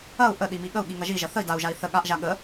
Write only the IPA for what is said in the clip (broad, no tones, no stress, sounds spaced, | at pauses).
ɐ u̯ ʔ ə ɗ i m i ɠ ə u̯ ɠ i ŋ ɐ ʒ i ʒ ɐ θ ə i̯ d a u̯ ʒ a i̯ θ ə ɠ a ʔ ʒ a ɠ ə